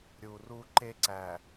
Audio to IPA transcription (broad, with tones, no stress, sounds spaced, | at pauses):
ɾʲ u˨ r u˦ ǃ e˦ ǀ æ˨